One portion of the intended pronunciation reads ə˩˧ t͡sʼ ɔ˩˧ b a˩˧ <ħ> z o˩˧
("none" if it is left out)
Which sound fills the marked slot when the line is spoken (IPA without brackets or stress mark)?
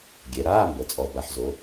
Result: ħ